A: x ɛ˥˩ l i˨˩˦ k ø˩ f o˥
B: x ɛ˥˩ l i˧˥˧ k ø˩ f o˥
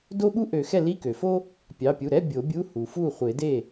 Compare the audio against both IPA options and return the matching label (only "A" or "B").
B